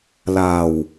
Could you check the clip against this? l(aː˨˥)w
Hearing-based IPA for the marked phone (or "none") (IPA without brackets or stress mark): aː˨˩